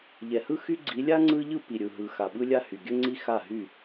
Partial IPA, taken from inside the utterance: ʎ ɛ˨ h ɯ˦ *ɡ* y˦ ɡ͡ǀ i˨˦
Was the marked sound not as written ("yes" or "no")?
yes